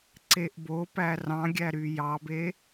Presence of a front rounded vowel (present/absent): present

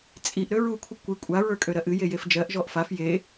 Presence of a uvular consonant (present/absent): absent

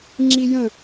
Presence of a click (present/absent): present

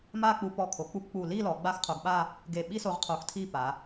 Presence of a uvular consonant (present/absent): present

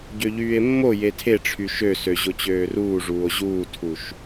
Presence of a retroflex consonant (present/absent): present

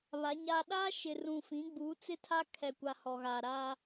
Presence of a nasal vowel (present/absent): present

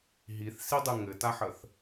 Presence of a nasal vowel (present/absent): absent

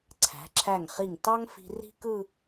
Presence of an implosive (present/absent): absent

